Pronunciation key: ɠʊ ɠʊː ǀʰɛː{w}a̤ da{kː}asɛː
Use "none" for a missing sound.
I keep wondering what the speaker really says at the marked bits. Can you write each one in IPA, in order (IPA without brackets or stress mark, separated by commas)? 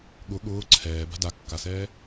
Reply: b, kː